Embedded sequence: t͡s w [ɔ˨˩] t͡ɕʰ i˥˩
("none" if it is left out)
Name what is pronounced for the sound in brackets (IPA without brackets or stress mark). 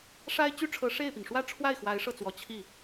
ɔ˨˩